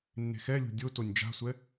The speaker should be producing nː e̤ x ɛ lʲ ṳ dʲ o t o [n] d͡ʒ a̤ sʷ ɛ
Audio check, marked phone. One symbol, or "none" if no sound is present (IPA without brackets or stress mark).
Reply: nʲ